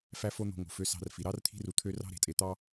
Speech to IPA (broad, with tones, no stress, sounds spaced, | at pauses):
f æ˥ f o˥ n̪ o̤˧ ŋ o̤˩ f ø˧ s ɑ̤˧ r f i˩ ɾ ɑ˥ r t̪ʰ i̤˥ r u˧ t̪ʰ ø˥ r ɑ̤˥ ɾ e̤˩ tʼ e˧ t̪ ɑ˥